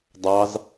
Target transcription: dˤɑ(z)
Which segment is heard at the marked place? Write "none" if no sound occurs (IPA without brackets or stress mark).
z